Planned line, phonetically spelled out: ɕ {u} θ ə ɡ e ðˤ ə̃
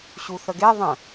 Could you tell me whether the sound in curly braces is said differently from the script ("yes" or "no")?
no